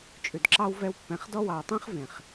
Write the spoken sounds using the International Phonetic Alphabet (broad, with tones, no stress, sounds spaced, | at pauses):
t͡ʃʼ ʉ˨ d ǁ ɑ˦ w v ɛ˧ w pː ɛ̃˨ χ d ɔ˦ w ɑ˨ w tˤ ẽ˦ χ v ẽ˨ χ